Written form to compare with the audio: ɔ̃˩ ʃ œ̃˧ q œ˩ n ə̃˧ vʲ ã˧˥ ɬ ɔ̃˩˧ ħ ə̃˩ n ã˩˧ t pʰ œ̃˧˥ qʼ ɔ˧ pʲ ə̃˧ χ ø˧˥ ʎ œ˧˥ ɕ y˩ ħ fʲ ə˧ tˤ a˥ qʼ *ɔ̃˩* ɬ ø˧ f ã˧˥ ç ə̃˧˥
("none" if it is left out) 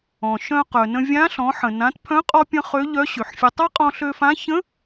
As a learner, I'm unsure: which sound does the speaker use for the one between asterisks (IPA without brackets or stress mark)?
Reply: ɔ̃˧